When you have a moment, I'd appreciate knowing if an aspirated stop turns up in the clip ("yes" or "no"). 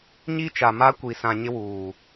no